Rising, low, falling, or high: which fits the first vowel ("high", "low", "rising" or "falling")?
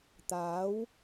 rising